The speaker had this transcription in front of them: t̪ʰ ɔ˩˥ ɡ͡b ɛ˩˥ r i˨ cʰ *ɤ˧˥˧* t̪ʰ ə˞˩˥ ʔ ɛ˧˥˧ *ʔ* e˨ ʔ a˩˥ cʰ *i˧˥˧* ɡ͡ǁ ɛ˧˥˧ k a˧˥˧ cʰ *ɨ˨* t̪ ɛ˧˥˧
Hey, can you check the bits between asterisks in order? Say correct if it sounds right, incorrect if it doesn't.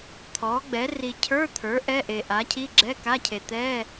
incorrect, correct, correct, incorrect

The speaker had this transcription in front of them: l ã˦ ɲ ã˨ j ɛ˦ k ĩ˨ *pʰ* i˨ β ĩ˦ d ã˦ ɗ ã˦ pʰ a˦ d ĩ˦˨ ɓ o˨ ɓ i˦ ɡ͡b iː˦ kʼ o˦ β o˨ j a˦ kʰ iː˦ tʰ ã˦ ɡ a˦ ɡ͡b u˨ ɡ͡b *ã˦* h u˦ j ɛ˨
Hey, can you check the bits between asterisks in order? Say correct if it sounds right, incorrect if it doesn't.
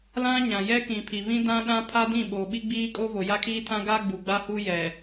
correct, incorrect

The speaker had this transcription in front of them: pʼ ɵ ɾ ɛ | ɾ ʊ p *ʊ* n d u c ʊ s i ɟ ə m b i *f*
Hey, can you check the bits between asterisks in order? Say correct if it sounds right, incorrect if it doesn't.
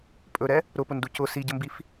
correct, correct

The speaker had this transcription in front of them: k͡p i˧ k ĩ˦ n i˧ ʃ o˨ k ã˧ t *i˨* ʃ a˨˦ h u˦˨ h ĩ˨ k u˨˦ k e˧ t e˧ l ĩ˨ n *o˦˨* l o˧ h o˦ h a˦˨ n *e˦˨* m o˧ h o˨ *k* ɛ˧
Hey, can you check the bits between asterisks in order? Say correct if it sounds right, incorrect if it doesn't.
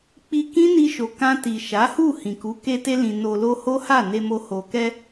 correct, incorrect, incorrect, correct

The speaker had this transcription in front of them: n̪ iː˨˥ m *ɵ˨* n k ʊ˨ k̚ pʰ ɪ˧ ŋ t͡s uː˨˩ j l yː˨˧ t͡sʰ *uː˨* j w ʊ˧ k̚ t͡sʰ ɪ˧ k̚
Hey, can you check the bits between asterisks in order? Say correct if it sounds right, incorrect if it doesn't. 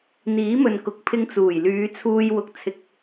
correct, incorrect

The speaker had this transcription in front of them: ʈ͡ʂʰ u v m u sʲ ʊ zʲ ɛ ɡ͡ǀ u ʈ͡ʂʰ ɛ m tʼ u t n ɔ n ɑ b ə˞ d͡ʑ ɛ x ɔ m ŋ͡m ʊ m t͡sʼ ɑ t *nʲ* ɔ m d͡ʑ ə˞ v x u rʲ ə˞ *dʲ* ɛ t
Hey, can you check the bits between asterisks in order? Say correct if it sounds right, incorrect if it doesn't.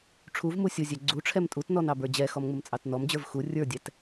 incorrect, correct

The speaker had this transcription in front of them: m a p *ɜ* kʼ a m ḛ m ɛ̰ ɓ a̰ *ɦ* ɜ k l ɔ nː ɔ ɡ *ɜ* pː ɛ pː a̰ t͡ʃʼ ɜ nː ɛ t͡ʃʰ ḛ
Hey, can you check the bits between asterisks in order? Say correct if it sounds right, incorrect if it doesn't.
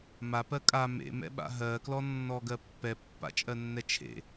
correct, correct, correct

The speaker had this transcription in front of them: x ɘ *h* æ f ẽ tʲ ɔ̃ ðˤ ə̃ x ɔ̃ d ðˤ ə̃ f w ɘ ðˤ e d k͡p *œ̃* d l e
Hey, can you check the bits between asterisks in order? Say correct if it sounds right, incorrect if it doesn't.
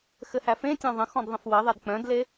correct, correct

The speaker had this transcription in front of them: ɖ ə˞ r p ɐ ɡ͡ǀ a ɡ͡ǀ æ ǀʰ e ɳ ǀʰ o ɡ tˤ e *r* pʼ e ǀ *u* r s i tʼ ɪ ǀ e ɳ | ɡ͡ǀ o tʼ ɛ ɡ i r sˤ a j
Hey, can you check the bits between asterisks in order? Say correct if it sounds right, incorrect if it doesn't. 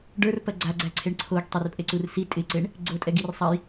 correct, correct

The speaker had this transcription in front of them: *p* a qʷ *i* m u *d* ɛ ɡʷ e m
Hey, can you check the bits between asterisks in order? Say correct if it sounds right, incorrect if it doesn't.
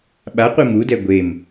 incorrect, correct, correct

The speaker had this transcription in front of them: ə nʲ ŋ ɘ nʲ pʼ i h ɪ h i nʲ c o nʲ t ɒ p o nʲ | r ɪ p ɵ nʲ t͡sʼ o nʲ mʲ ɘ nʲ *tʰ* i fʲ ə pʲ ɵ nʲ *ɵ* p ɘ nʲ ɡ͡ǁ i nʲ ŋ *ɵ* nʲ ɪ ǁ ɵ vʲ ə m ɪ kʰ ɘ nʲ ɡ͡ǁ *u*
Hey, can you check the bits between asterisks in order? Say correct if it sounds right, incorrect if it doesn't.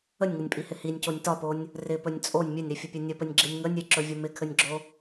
incorrect, incorrect, incorrect, incorrect

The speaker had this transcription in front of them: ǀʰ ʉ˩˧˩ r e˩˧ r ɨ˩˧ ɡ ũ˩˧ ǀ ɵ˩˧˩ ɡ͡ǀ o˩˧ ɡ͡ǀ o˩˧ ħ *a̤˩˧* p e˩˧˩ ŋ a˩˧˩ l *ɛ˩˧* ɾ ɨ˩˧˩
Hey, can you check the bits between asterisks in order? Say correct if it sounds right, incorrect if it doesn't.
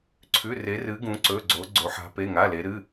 correct, incorrect

